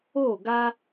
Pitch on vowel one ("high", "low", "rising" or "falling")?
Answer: falling